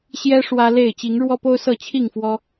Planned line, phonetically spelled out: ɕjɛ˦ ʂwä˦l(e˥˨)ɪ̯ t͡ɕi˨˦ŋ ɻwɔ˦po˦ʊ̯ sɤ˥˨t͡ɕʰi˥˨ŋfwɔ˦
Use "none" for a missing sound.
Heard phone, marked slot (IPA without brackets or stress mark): e˥˨